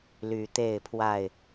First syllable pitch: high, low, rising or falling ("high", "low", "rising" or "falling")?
low